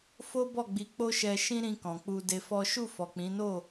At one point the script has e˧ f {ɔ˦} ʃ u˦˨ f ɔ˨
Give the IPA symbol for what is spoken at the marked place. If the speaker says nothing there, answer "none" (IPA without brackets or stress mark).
ɔ˦